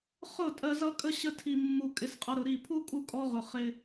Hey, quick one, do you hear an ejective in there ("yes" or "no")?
yes